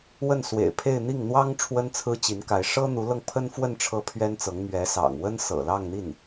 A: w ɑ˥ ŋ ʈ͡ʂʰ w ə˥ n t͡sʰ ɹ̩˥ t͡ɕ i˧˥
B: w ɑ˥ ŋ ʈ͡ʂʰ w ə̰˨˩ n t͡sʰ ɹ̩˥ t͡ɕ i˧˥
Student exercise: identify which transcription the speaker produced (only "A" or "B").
A